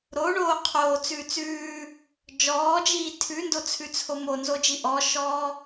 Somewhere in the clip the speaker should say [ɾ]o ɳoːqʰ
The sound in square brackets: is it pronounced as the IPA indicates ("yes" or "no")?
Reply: yes